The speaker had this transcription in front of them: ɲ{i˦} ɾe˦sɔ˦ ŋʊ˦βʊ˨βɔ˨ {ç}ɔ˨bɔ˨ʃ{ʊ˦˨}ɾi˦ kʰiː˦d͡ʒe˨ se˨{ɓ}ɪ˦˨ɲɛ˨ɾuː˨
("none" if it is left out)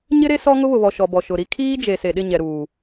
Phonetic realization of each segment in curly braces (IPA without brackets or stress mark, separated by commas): ɪ˦, ʃ, ʊ˨, ɗ